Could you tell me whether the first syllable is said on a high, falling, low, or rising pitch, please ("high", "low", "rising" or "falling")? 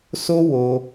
high